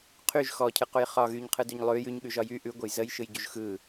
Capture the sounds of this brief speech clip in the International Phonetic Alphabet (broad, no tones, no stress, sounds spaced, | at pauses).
qʰ y ʒ x ɔ cʰ ɯ q u j χ ɒ ɣ y ɲ qʰ ɯ d y ɲ lˠ ʉ j ʉ ɲ ɠ ʉ ʒ ɒ j y ʔ ʉ ɡʷ ə j z ə j ʃ ɯ j ɟ u ʒ x ɯ